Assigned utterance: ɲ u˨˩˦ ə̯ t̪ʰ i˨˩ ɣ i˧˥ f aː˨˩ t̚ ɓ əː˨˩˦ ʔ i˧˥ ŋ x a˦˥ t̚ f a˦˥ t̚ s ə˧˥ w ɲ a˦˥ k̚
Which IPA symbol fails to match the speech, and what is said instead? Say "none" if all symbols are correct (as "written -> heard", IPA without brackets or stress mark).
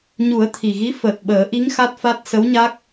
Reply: aː˨˩ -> əː˨˩